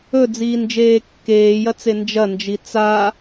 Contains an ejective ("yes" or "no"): no